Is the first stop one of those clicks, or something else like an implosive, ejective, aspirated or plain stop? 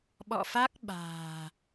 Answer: implosive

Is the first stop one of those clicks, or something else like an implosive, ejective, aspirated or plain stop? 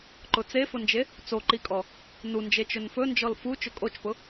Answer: click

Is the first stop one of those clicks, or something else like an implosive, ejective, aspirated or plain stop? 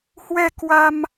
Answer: plain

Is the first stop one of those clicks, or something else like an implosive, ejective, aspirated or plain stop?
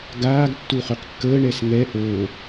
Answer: plain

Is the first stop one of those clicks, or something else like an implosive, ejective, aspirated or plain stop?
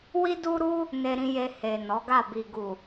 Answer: plain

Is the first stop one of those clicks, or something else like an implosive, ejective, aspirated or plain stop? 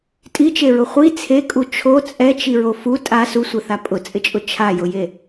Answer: ejective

